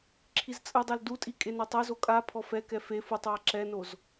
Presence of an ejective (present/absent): present